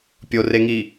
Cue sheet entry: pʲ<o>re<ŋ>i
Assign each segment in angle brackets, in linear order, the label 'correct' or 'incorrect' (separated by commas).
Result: correct, correct